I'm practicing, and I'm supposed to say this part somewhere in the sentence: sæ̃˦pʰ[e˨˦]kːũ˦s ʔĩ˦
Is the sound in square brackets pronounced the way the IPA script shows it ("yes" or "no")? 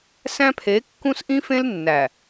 yes